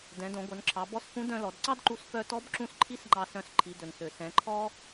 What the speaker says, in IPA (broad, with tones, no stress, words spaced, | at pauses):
dɛ̃˩˧dõ˩˧ɡʷœ˩˧nǁʰɑ˩˧ bɔ˧˥sfũ˧˥ dœ̃˧lɔ˩˧dǀɑ˥dǃu˧s fœ˧ tɔ˧˥bǁũ˧s ǃʰi˥sŋ͡ǃɑ˧sœ̃˧s ǃʰi˩˧dɵ˩nsø˩ sɛ̃˩˧ǃʰɔ˥